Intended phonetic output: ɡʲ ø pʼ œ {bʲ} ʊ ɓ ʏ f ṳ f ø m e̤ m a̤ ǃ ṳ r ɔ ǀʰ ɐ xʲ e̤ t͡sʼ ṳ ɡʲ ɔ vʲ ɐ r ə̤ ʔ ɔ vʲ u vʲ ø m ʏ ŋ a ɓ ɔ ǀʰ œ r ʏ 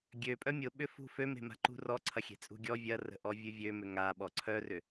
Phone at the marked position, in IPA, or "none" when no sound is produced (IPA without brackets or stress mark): mʲ